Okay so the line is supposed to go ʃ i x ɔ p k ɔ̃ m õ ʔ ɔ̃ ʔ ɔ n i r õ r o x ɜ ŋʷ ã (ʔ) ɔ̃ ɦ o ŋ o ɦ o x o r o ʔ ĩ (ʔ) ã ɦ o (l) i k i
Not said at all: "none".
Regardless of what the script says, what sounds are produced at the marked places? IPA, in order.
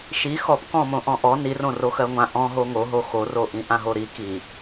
ʔ, ʔ, ɾ

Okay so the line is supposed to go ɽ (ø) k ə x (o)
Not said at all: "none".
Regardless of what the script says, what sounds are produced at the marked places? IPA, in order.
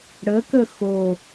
ə, o

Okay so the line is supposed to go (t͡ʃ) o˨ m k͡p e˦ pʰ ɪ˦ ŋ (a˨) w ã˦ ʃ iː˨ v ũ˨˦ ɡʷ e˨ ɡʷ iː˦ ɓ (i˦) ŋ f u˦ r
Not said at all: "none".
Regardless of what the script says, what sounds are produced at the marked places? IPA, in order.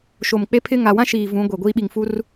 ʃ, a˨, i˨

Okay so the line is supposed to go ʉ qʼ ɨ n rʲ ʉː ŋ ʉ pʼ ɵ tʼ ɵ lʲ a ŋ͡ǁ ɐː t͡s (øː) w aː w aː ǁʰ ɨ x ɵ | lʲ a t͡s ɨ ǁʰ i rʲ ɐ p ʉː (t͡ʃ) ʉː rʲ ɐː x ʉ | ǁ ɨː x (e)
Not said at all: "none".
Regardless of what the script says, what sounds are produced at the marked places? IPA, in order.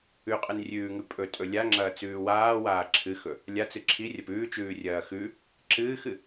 ʉː, t͡ʃ, ɨ

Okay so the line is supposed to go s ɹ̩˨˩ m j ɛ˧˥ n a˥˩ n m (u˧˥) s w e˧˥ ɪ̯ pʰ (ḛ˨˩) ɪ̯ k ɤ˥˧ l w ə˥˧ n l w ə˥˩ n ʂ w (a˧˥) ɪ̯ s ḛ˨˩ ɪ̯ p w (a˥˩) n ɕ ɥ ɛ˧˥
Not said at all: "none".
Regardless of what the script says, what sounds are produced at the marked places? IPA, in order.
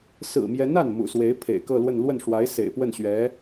ṵ˨˩, ḛ˨˩, a˧˥, ə˥˩

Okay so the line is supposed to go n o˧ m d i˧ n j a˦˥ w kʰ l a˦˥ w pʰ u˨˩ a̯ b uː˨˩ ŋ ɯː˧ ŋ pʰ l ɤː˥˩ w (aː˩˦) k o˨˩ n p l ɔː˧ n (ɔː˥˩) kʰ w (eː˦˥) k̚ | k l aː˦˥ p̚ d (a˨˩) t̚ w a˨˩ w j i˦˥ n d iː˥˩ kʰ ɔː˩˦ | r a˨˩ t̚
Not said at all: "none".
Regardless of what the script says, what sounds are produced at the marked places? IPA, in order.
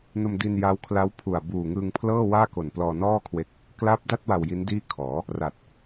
aː˥˩, ɔː˥˩, e˦˥, a˥˩

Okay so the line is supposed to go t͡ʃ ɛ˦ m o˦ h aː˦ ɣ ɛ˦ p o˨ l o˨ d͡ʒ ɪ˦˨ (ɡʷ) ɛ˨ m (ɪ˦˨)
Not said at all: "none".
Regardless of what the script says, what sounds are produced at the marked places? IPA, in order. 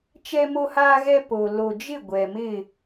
ɡʷ, ɪ˦˨

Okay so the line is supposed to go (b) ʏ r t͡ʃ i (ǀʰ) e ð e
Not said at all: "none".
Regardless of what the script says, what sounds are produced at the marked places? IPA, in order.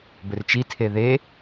b, tʰ

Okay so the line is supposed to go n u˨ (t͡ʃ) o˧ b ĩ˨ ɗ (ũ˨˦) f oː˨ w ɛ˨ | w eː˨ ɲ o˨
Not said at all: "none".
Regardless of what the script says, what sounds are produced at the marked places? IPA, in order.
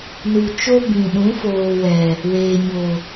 t͡ʃ, ũ˨˦

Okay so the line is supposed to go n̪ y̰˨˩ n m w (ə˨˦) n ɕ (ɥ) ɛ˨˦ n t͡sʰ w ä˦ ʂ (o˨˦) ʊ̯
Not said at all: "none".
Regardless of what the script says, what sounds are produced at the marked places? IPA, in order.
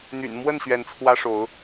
ə˥˨, ɥ, o˨˦

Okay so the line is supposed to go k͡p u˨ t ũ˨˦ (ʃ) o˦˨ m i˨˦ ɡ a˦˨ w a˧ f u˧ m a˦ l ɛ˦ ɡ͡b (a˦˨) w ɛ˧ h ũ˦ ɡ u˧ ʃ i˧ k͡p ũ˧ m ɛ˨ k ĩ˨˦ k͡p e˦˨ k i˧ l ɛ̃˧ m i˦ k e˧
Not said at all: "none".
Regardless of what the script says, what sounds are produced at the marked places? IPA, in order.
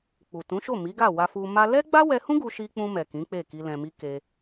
ʃ, a˦

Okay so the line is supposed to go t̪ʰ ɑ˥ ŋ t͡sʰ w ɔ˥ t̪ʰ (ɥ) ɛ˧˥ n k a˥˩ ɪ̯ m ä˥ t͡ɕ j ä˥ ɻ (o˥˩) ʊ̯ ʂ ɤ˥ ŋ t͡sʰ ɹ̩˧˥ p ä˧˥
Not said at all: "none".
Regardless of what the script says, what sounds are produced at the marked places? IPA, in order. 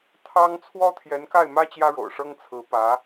j, o̰˨˩

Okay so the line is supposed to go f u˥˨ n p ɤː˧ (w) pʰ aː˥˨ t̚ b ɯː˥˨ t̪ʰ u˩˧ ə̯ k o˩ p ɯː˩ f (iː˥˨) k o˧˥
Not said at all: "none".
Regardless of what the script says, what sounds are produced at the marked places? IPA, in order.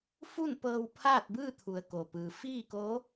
w, iː˥˨

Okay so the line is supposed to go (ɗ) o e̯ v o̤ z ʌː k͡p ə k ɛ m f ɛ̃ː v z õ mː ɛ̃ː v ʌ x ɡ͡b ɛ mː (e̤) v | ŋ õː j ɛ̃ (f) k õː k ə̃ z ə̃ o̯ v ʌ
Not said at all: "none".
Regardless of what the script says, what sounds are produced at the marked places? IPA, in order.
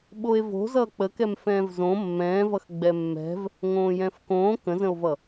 ɓ, ɛ̤, f

